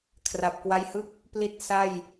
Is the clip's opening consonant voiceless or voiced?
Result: voiceless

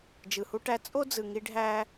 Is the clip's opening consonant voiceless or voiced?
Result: voiced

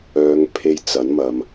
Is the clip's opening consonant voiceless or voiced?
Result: voiced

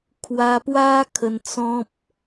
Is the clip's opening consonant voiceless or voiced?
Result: voiceless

